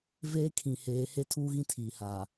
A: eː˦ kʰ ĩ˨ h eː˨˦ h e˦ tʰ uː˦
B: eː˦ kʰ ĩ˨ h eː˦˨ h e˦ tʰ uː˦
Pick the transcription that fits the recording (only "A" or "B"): A